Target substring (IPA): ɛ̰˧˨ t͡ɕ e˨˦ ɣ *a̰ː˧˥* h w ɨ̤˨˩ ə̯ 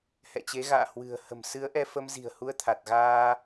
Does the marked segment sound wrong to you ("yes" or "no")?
yes